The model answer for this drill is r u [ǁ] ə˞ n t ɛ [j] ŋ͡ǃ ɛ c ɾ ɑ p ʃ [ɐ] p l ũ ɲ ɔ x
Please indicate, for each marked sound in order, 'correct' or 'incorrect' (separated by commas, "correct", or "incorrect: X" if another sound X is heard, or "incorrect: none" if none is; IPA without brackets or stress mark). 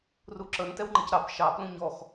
correct, incorrect: w, incorrect: ɑ